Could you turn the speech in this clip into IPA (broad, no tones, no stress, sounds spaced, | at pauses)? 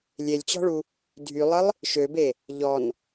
lʲ e lʲ t͡ɕ ɔ̤ ɭ u | dʱ y lˠ ə lˠ | ʃ ø b e | ʎ ɔ n